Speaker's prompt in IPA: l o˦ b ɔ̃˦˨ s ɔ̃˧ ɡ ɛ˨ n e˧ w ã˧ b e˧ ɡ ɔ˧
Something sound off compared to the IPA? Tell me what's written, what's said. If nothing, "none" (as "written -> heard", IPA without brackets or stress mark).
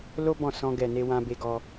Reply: none